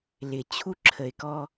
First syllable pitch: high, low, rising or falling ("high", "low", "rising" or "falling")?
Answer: low